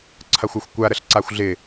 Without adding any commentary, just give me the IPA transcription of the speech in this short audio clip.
ǀʰ ɐ xʷ a xʷ kʷ a ɾ ə ɬ ǀ a xʷ ɮ ɪ

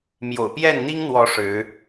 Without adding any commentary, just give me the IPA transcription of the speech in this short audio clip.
m j o̰˨˩ ʊ̯ p j ɛ˥˩ n n̪ i˥ ŋ n̪ w ɔ˧˥ ʂ ɻ̩˧˥

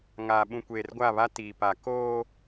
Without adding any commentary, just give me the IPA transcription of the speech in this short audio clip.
ŋ aː˨ ɓ ũ˨ kʷ eː˨ r ɡʷ a˦˨ β a˦ t iː˨ p a˨ k oː˦

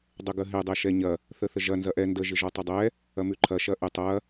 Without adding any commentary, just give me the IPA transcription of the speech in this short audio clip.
dˤ ə ɡ ə ɦ ɪ dˤ ɛ ʃ ɛ ɲ ɐ | θ ə θ ə ʒ ɐ n z ɐ ʔ ɛ n d ə ʒ ɪ ʒ ɔ tˤ ɐ dˤ ɛ | ɐ m ʉ ǃʰ ɐ ʃ ɐ ʔ ɪ tˤ ɐ

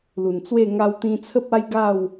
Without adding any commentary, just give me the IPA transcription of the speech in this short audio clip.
l u˨˩ n t͡s w e˥˧ ŋ a˧ w t̪ ĩ˧ t͡sʰ ə˦ p̚ a˦ j ɡ a˥˧ w

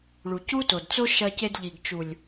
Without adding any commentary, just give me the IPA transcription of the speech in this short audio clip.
ɭ u˨ c u˦ t o˨ d t͡s o˦ ʃ ɐ˧ c e˧ d ʎ i˨ ɡ t͡ʃ u˨ lʲ

